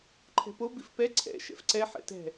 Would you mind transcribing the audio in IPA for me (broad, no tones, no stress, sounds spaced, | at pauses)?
ǃʰ ɛ̤ p o b i f p ɛ ǀʰ ɛ̰ ʃ ɛ̰ f ǀ ɛ ħ ɛ̰ t ɛ̤